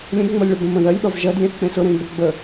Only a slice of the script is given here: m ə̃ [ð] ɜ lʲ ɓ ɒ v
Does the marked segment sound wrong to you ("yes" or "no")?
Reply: no